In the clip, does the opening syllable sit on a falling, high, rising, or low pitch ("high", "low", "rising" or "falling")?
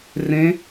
rising